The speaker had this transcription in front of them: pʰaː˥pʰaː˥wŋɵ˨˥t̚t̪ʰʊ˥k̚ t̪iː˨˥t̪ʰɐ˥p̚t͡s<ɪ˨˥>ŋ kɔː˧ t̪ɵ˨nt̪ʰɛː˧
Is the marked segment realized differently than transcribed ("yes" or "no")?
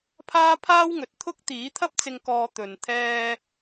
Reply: yes